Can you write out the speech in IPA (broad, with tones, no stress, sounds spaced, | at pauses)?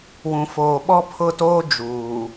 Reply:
w ũ˨ f oː˨ ɓ ɔ˦ pʰ ʊ˦˨ t oː˦ d͡ʒ uː˨